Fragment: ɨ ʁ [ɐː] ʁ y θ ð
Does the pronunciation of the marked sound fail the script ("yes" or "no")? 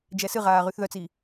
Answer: yes